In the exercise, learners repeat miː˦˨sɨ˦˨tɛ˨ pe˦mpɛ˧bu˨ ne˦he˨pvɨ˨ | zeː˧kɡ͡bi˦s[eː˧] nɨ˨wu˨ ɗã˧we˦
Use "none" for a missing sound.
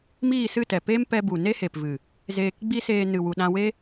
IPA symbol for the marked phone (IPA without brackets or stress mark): eː˧